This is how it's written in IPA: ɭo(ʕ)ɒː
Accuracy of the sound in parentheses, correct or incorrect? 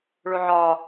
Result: correct